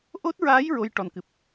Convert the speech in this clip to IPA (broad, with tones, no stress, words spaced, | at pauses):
ʔo˦˥t̚ɹaː˧˥j ɹo˧˥jʈɔ˨˩nkɨ˨˩p̚